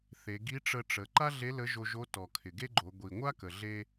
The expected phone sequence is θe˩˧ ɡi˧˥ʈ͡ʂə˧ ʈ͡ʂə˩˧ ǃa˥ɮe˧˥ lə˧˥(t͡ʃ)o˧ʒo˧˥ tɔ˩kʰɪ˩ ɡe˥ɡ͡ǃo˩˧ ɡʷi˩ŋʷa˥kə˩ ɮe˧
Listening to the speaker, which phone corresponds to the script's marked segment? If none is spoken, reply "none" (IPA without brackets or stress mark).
ʒ